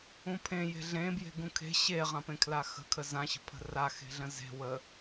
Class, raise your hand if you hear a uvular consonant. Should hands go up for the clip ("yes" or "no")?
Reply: yes